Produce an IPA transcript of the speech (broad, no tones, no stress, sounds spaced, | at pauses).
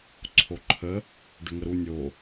ǀʰ o ǃʰ ə | ɖ ʏ ŋ ə ɾ u nʲ o